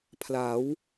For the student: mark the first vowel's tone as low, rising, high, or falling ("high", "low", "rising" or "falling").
rising